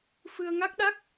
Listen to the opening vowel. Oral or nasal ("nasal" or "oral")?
oral